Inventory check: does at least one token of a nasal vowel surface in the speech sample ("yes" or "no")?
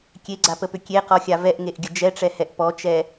no